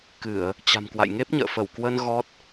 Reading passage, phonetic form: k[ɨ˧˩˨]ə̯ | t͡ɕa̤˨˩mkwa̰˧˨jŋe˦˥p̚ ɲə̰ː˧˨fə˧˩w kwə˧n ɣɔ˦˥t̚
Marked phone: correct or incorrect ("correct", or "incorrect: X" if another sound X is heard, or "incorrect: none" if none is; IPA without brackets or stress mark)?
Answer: correct